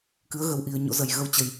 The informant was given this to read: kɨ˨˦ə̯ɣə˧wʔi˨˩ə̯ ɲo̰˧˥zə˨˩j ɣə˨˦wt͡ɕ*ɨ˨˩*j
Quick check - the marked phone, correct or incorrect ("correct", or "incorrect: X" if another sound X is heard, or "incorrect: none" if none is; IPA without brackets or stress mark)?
incorrect: ə˨˩